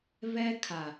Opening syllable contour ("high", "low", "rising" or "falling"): high